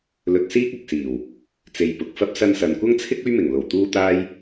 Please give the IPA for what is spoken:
lɵ˧t̚siː˥k̚ɐ˨k̚siː˨˩w | t͡se˨jpʊ˨k̚fɐ˥p̚ sɐ˧nsɐ˨nkʷɐ˥ŋt͡sʰɪ˥k̚ ɵ˥ɥmɪ˨˩ŋlo˨˩w t̪uː˥t̪aː˥j

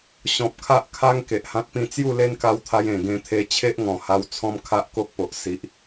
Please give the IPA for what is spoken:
ɕɔ̃˨p̚kʰa˦ʔ kʰa˦ŋ ke˨ʔhã˦t̚pĩ˥˧ t͡sju˥˧le˦nka˧wt̪ʰa˧j ẽ˨˩ɡẽ˧t̪ʰe˧ t͡ɕʰe˦ʔŋɔ̃˨˩ha˧w t͡sʰɔ̃˦mkʰa˦ʔ ko˦k̚po˨ʔ si˨ʔ

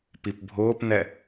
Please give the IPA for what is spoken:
pipbʱʊːpnɛ

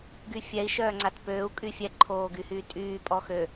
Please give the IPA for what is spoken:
ɡyfʲɛi̯ ʃœːŋ͡ǀatpøːu̯ kʼyfʲɛ ǃʰoːɡyhyːtʼyː pʼɔxø

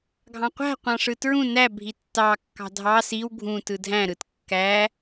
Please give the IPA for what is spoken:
ɡʱɑ̃qʷæ̤ qʷɑ̃ʂɯtɹũ næ bʱitːɑ kːɑ̤dʱɑ siw ɡʱũ tɯdʱæ̃ɾɯt kːæ

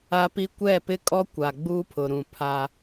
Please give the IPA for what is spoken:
a˦pi˦ kʷɛ˦˨pɪ˦kʼɔ˦kʷa˨ ɡ͡buː˦pʰʊ˨ɾũ˨ pʰa˦

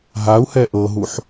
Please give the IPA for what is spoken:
ɦau̯hɛ ʔɤɦuħ

